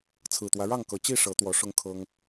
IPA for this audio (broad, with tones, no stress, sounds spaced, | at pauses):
t͡sʰ ɹ̩˨˩ t̪ w ä˦ ɻ ɑ˥˨ ŋ k ɤ˨˩ t͡ɕ i˥˨ ʂ ɤ˨˦ t̪ w ɔ˨˦ ʂ ʊ˦ ŋ kʰ ɤ˦ ŋ